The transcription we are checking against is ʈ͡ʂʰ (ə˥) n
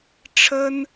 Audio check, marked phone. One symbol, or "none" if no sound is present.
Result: ə˥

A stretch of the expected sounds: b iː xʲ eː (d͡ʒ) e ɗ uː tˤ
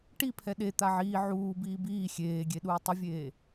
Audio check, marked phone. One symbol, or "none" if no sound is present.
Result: ɡʲ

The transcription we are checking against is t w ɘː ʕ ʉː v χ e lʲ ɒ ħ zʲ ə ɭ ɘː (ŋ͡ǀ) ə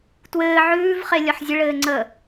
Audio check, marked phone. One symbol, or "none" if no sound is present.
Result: ŋ͡ǀ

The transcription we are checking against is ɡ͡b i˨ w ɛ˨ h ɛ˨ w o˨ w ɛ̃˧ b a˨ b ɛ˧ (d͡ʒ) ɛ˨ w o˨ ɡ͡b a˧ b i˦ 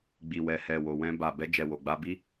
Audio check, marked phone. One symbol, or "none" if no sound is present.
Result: d͡ʒ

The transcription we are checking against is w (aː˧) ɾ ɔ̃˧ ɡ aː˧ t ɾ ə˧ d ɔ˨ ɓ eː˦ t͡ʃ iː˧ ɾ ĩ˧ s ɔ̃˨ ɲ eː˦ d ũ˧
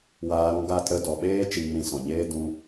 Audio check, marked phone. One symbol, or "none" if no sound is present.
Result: aː˧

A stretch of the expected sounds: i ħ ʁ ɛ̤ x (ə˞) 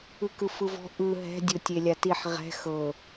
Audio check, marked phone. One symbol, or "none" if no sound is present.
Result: ɤ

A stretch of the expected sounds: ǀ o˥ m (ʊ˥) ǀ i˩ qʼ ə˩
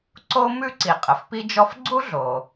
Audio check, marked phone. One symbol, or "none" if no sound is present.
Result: ʉ˥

